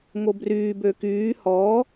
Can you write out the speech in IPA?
ŋ o b r yː b ø k yː h ɔː

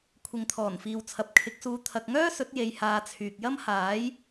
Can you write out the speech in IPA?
kʷʰ ɪ˨ ŋ t̪ʰ ɔː˨˩ n f iː˨ w t͡sʰ ɐ˨ p̚ kʰ ɪ˨˥ k̚ s uː˧ t̪ʰ ɐ˨ k̚ ŋ œː˥ s ɵ˨˥ t̚ j e˧ j h aː˧ t͡sʰ yː˨ k̚ j ɐ˥ m h aː˨˥ j

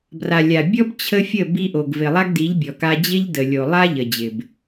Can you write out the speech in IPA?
b r a˨ lʲ a˨ bʲ ɔ˦ b t͡ɕʰ ə˦ fʲ ə˦˨ b i˧ ʔ o˨ ɡ v ɪ˨ lˠ a˦ ɡ d i˨˦ ʎ bʲ ɔ˨ k a˧ d͡ʑ ɪ˧ ʎ d ə˨ lʲ o˨ lˠ a˦ ʎ ə˨ d͡ʑ ɪ˨ b

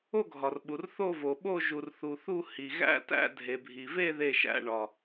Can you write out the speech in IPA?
o˥˧ ɡʱ ɒ˨ r ɓ u˨ r θ o˥˧ v o˨ ɓ o˥˧ ʒ u˨ r θ u˨ θ u˥˧ h i˨ ɣ æ̰˥˧ t æ̰˥˧ dʱ e˨ bʱ i˨ v e˥˧ ð e˥˧ ʃ æ̰˥˧ ɳ ɒ˨

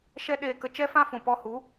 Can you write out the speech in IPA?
ʃ ɛ˦ ɗ eː˧ k ə˧ t͡ʃ ɛ˦ f ã˦ f ũ˨ p ɔ˧ h u˨˦

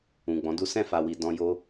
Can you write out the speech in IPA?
ũ˨ ɡ͡b ɔ̃˨˦ d u˦ s ɛ̃˦˨ f a˨ w i˨ d ɔ̃˧ j o˦

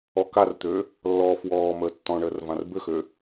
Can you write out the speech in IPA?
ɔ k a r t̪ øː | lː ɔː f w ɔː m əː tː ɔ̃ ɳ əː r v ã r b ø x ø

